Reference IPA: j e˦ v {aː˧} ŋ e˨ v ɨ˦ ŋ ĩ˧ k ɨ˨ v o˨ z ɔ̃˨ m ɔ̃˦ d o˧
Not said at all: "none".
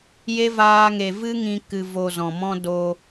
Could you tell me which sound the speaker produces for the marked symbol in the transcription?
aː˧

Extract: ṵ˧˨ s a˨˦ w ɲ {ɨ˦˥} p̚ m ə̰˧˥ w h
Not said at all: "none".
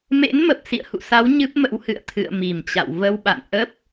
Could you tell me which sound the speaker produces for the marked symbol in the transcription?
ɨ˦˥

